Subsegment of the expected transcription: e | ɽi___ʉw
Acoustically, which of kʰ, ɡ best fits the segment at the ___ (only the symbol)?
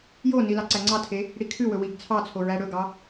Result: kʰ